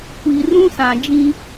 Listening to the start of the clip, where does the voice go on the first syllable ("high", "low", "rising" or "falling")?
low